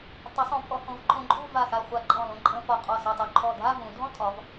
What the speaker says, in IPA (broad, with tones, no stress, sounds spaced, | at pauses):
tˤ u˩˧ sˤ õ˩˧ pʼ ɔ˩˧ h õ˩˧ v ǃʰ õ˧ ǃʼ u˥˧ v a˧˩ x a˧˩ χʷ a˧˩ ǃʼ ɔ̃˧˩ l õ˧ ǃʼ ə̃˧ f ɒ˧˩ qʼ ɔ˧˩ s ɛ˧˩ tˤ u˧˩ ǃʰ ɔ˧˩ dʱ a˥˧ v ũ˩˧ dʱ ɔ̃˥ tʼ ɒ˩˧ v